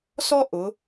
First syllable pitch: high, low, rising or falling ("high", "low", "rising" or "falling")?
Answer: high